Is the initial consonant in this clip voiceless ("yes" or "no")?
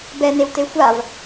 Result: no